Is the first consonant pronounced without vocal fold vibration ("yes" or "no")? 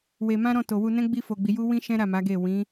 no